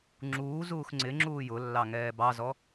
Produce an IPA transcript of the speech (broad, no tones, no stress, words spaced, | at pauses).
ŋ͡ǁuː zuːxŋ͡ǀɪŋ͡ǁuː jʊlːɑ ŋɛːbɑzɔ